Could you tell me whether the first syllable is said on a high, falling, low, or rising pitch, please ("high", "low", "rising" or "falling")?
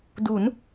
rising